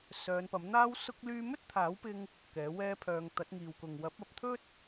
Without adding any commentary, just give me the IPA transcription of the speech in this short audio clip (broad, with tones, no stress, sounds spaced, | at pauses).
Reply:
s œː˨˧ n p ɐ˨˥ m n̪ aː˥ w s ʊ˥ k̚ l yː˥ m ɵ˥ t̚ t̪ʰ aː˨˥ w p ɪ˧ ŋ | k ɛː˨˥ w ɛː˥ pʰ œː˧ ŋ t̪ ɐ˨˥ t̚ ŋ iː˨ w k ʊ˨ ŋ w ɐ˨˥ p̚ ɐ˨˥ p̚ t̪ʰ ɵ˥ t̚